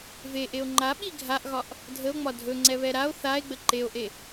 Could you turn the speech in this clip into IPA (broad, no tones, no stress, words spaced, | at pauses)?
veʔeo̯ ŋ͡ǃaɓi ɡʱaʔɣɒʔ | dʱəo̯ŋ͡mɒ dʱɵŋ͡ǀɛβɛ ɾao̯ θae̯ɡ͡bə ǃeo̯ʔe